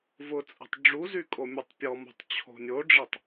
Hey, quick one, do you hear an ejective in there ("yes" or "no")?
yes